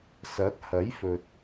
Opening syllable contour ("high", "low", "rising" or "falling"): rising